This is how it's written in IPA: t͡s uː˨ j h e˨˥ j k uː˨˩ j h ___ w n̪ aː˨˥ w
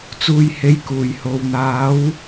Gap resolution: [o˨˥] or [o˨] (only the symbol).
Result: o˨